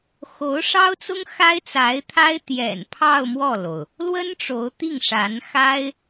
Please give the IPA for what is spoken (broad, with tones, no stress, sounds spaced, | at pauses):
x o˧˥ ʊ̯ ʂ ɑ˥ ʊ̯ t͡s ʊ˥ ŋ x a˥ ɪ̯ t͡s a˧˥ ɪ̯ t̪ʰ a˥ ɪ̯ t̪ j ɛ̰˨˩ n pʰ ɑ˥˧ ʊ̯ m w ɔ˥˩ l o˩ ʊ̯ | l w ə˥ n ʈ͡ʂ o˧˥ ʊ̯ t̪ i˥˩ ŋ ʂ a˧˥ n x a˥ ɪ̯